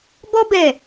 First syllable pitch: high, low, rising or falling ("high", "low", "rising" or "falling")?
high